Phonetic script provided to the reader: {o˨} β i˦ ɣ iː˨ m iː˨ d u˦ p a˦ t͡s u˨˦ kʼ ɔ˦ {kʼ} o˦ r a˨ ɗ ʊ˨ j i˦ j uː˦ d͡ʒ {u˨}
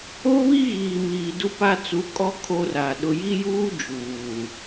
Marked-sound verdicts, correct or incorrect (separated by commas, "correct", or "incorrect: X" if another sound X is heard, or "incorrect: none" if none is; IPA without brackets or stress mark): incorrect: o˦, incorrect: kʰ, incorrect: uː˨